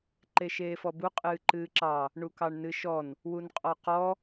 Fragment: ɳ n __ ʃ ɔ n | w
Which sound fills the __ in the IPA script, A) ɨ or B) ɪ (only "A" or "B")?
A